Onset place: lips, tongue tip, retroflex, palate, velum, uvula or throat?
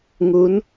velum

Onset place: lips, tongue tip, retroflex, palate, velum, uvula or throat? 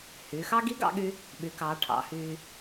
throat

